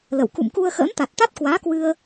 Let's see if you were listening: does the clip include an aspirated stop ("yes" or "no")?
no